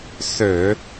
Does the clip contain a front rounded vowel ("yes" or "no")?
yes